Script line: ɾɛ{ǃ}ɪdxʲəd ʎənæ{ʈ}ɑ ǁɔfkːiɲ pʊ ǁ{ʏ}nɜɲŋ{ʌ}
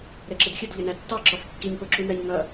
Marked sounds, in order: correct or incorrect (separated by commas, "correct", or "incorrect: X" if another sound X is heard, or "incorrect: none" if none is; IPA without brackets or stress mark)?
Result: incorrect: ǁ, incorrect: tː, incorrect: u, correct